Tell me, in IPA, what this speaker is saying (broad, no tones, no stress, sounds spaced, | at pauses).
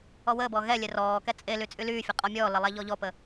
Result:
ɔ w əː b ɔː ɣ ɛ lʲ ɛ r ɔː k ɛ t͡sʼ e l y t͡sʼ y l yː fʲ ə qʼ ɔ mʲ ɔː l ə lˠ a ʎ ɔ ʎ ɔ p ə